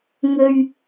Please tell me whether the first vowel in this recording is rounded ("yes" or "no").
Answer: yes